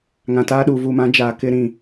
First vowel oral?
no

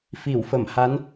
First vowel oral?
yes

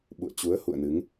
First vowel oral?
yes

